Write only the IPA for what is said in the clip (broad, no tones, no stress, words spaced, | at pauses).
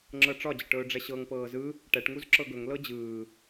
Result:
ŋ͡ǁɤʈ͡ʂɒd͡ʑəʈɵː ɖ͡ʐɛɕɤŋpɤː zɯ | ʈɛʈŋuz ǁɤɡɵŋlɤ d͡ʑɯː